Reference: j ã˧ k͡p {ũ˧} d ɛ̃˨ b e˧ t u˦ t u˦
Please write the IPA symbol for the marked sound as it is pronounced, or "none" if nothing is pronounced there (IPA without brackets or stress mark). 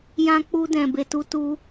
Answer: u˧